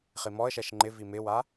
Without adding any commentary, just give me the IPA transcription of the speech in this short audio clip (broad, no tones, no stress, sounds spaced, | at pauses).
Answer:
χ i m ɔ ə̯ ʃ ɛ ʃ ŋ͡ǃ ɪ v i m ɪ w a